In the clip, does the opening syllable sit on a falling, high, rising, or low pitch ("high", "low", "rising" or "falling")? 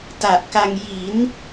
low